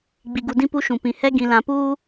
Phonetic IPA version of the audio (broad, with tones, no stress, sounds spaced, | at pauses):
ɡ͡b i˨ ɡ u˨ d ĩ˦ p u˦ ʃ ũ˨ p ĩ˨ h ɛ˦ ɡ ĩ˨ l ã˨ p uː˦